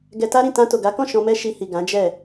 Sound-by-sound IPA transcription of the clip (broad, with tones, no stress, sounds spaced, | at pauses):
ɡ ɛ˧ t a˦ ɾ ĩ˦˨ t ã˧ t o˨ ɡ a˨˦ k ɔ̃˦˨ ʃ ɔ̃˧ m ɛ˦ ʃ i˧ h i˨ ɡ ã˨˦ d͡ʒ ɛ˦˨